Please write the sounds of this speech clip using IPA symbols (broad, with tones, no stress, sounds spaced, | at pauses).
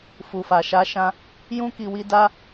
f u˨ f a˨ ʃ a˨˦ ʃ ã˧ | j ũ˦ k i˧ w i˦ d a˦